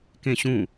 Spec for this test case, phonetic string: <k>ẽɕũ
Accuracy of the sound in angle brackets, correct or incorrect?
correct